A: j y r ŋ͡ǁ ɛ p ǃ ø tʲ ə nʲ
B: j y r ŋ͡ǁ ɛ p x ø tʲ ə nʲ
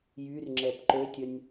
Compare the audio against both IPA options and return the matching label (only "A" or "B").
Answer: A